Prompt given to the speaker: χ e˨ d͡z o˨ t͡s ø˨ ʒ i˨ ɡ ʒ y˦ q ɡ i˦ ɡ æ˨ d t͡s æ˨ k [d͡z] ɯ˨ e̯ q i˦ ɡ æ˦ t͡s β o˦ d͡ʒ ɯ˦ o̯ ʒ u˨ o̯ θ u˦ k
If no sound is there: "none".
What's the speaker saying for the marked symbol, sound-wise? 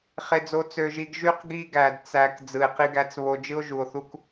d͡z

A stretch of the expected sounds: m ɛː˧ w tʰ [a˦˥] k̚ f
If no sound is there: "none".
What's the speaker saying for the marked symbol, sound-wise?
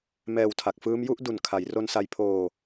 a˨˩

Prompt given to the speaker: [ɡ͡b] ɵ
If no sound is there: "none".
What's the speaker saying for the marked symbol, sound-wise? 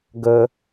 ɡ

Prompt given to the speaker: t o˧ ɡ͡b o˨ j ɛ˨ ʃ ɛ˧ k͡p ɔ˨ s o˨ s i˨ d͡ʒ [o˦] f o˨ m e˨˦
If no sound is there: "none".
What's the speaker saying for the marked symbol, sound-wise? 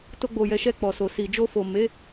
o˧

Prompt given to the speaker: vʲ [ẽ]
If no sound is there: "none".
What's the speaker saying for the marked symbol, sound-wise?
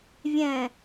ɛ̃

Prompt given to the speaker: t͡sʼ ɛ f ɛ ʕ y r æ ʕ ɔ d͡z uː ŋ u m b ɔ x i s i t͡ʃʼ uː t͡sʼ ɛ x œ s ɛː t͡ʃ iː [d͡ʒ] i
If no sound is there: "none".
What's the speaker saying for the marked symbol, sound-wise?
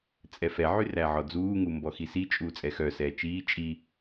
t͡ʃʼ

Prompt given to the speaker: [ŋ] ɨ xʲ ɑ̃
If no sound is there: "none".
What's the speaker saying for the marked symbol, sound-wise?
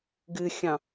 ɡ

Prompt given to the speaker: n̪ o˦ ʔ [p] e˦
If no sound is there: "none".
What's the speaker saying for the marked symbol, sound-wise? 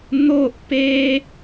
p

